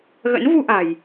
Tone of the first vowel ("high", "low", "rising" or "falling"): rising